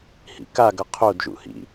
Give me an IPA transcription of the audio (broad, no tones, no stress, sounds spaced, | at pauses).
h ḭ k a ɡ ʌ qʰ o d ʒ ṵ h ḭ